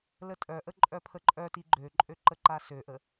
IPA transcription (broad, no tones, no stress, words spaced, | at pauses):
lətʼœʔə ǃʼœpʰəǃʼœti ɡ͡ǃøǃʼø ǃəǃasøʔə